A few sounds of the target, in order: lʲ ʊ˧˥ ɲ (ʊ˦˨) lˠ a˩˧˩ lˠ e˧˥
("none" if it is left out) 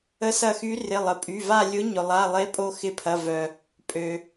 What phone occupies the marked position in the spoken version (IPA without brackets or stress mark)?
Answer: ʊ˩